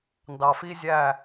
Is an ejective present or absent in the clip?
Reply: absent